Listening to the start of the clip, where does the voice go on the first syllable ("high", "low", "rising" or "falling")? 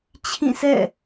falling